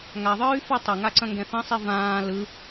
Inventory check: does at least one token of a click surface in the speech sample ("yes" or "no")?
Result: yes